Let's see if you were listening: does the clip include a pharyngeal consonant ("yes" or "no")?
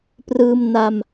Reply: no